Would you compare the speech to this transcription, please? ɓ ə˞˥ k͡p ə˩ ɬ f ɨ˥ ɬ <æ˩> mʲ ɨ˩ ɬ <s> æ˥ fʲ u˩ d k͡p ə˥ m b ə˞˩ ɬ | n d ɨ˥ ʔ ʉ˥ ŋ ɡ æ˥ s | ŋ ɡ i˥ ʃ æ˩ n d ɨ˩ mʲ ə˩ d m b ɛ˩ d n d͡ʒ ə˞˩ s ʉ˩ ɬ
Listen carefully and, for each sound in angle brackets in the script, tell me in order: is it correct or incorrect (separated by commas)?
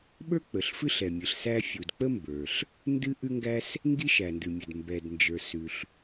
incorrect, correct